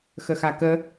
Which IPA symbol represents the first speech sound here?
x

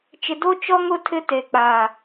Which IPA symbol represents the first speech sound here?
t͡ʃ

